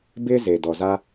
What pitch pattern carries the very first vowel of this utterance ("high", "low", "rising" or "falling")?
high